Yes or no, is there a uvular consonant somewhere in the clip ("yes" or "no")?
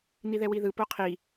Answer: yes